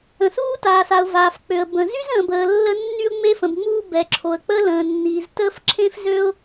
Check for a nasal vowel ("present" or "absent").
present